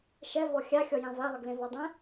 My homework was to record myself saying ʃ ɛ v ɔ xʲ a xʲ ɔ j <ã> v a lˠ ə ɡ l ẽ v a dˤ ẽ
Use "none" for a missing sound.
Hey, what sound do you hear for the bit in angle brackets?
ã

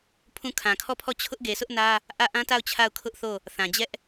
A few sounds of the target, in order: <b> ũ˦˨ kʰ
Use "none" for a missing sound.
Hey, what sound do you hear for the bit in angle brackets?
pʰ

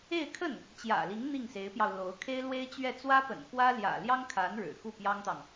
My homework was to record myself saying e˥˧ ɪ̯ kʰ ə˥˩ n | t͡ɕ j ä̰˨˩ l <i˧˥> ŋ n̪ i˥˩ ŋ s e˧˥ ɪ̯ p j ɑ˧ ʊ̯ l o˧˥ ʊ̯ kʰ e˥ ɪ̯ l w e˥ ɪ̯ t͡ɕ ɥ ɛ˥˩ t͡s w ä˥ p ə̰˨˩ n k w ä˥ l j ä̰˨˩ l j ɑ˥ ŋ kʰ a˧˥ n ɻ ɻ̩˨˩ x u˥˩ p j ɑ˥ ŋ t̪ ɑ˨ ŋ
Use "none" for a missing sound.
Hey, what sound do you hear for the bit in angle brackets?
i˧˥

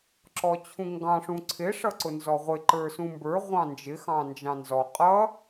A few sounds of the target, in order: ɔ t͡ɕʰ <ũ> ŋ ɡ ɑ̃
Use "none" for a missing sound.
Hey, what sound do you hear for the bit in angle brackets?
ũ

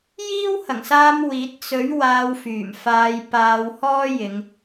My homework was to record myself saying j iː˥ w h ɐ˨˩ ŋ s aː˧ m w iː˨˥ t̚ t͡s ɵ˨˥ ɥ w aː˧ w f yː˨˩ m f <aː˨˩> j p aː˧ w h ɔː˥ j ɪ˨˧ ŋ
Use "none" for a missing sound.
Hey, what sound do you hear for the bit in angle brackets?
aː˧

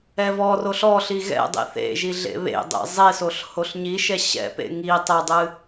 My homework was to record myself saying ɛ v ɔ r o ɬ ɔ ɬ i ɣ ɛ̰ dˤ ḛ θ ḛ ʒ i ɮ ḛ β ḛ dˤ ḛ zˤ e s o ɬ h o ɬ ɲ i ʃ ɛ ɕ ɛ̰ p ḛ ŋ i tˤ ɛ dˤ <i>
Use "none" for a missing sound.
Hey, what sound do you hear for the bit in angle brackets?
ɨ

